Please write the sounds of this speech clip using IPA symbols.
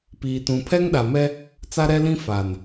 piː˨ tũ˨pʰɛ˦ŋɗa˨mɛ˦ | t͡sa˦ɾɛ˦lĩ˦ fa˨n

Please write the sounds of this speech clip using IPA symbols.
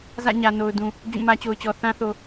zä̰˦˨ɲä˨ no˨ʊ̯dũ˨ | d͡ʑũ˦˨mä˦t͡ɕo˨ʊ̯t͡ɕɔ˨ θã˦θo˨

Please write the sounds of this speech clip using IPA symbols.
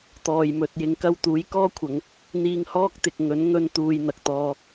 t̪ɔː˨˩jmɵ˨t̚jɪ˨˧ŋ kɐ˧wt̪uː˨˥j kɔː˥kʷʰɐ˨˧ŋ | n̪iː˧ŋhɔː˥k̚t̪ɪ˨k̚ ŋɵ˨˥nŋɵ˧nt̪uː˨j n̪ɐ˨k̚t̪ɔː˧

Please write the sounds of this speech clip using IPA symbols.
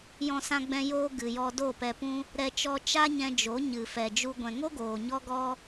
jɔ̃˦sã˦ɡ͡bɛ̃˦ joː˦ ɡɨ˨jɔ˧ do˦˨pɛ˧pũ˦ | ɾɛ˦t͡ʃɔ˦ t͡ʃa˦ɲɛ̃˧ d͡ʒo˨˦ɲɨ˨ fɛ˨d͡ʒu˧ ɡʷɛ̃˨ŋo˦ ɡoː˨ɲɔ˦ɡɔ˦

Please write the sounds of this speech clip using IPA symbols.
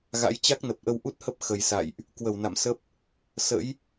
ɣa̰˧˥j t͡ɕa˦˥k̚nə˨˩p̚ʔə˧w ʔu˦˥t̚hə˦˥p̚ xə˨˩j sa̰˧˨jʔ | kwə˧˩wna̰˧˨msə˦˥p̚ | sə̰˧˥j

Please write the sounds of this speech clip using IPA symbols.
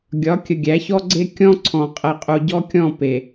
ɡʲɒ˨˦ kʲə˨ ɡʲæ˨˦çɔ˦ɡ͡ǀe˦ kʲɔ̃˦ǀʰɔ̃˨ qʼɛ˨qʼu˨ɟɔ˦ kʲɔ̃˦˨ pe˨

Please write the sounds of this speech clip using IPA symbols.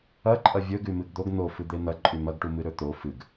ɐǃʼɐ vʲɵ ɡʉmɨɡd̪oɡ n̪o fɨd̪en̪ɐ ǃʼʉmɐɡʈu mɨɾɵt̪o fɨɡ

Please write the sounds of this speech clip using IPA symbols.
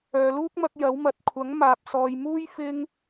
œː˨luː˥k̚mɐ˧k̚ jɐ˨˥wmɐ˨t̚ kʷʰɐ˨˥ŋ maː˨p̚sɔː˨jmuː˥j fɪ˧ŋ

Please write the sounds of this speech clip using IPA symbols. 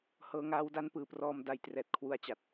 hɤː˧ŋaː˦˥wda˦˥n pɯː˨˩prɔː˧mda˩˦jtrɛː˨˩t̚ kʰwu˩˦a̯t͡ɕa˨˩t̚

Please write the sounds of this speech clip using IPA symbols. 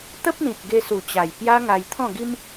t̪ə˦p̚n̪ĩ˨t̚ ɡe˧su˨˩ t͡ɕa˨˩j pja˦ŋa˧j t̪ʰɔ̃˥˧ɡi˦m

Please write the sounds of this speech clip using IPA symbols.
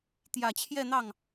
t̪jä˨˩t͡ɕʰjɛ˥˧n̪ɑ˥˩ŋ

